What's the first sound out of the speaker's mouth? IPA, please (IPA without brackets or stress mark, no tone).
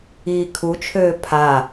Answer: iː